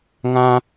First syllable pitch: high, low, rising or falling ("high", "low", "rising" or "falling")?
high